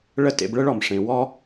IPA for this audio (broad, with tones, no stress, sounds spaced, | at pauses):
ɭ ə˦ t ḛ˧ b ɭ ə˦ ɭ ɔ˨ m ʂ ẽ˨ w ɔ˦